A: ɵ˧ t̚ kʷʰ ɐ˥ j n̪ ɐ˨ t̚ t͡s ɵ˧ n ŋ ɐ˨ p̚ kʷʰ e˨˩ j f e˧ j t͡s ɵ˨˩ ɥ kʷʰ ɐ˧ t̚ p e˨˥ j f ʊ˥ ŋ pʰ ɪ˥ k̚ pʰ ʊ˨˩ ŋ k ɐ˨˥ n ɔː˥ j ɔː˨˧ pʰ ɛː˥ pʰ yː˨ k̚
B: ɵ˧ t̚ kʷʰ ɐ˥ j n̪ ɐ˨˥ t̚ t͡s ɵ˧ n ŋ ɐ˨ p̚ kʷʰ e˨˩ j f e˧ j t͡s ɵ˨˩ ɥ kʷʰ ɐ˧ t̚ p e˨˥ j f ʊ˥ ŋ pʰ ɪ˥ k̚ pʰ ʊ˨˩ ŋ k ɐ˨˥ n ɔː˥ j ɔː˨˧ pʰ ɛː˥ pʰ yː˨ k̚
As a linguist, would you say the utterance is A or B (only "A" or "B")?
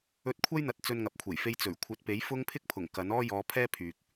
A